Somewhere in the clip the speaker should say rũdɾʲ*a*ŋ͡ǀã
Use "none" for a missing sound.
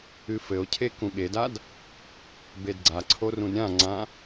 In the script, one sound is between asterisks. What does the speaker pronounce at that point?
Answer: ã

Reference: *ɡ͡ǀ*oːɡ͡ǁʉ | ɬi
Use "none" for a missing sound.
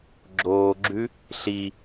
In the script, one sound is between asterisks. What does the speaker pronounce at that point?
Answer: ɡ͡ǁ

